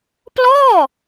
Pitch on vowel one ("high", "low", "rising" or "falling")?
falling